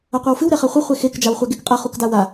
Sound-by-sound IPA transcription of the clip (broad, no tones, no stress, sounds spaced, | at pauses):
ɐ qʷ a w f ɨ w ɾ ɛ χ a χʷ ɘ χʷ e x e k d͡ʒ a w χʷ a ɡ e k qʼ ɐ χ u k d a w a